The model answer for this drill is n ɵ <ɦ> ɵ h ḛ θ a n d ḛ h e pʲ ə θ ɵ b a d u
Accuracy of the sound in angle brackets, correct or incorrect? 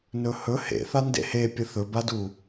incorrect